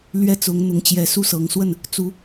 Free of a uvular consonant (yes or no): yes